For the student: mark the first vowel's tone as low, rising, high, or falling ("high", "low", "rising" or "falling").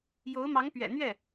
rising